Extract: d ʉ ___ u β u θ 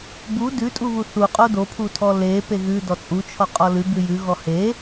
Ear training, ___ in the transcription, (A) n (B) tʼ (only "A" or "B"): B